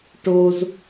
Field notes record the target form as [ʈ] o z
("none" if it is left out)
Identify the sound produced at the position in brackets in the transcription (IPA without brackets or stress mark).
ʈ